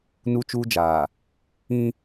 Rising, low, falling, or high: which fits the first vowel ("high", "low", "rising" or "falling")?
high